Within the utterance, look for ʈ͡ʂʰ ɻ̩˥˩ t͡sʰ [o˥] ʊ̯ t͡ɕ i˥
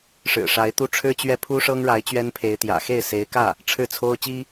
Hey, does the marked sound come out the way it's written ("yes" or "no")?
yes